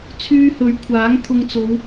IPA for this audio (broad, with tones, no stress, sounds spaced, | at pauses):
t͡sʰ yː˧ h ɵ˨˥ ɥ kʷʰ aː˨˥ ŋ t̪ʰ ʊ˧ ŋ t͡s o˨˧ w